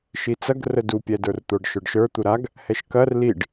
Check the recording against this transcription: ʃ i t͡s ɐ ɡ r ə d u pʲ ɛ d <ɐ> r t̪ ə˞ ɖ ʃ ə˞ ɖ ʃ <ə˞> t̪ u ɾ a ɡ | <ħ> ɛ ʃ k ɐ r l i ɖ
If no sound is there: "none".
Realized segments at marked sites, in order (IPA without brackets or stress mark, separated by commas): ə˞, ə˞, h